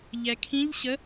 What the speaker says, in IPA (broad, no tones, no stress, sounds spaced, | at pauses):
ʎ ɛ kʰ ĩ ʎ ɕ ə